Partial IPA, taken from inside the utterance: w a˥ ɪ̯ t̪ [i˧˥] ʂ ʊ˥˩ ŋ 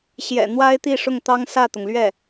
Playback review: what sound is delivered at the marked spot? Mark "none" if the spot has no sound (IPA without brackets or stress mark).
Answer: i˥˧